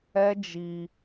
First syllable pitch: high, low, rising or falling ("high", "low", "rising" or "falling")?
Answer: high